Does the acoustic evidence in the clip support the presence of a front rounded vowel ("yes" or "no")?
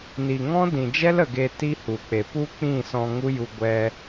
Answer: no